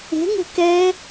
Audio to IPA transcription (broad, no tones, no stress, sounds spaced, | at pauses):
e̤ ŋ e̤ k ɛ